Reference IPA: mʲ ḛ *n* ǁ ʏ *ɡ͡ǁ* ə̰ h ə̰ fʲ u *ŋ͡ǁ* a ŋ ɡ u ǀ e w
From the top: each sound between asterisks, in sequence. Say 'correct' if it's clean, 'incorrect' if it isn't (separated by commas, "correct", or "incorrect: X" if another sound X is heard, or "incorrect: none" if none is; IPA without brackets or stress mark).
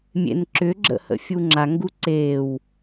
correct, correct, correct